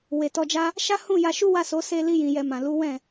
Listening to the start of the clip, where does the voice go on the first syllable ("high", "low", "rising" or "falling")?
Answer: low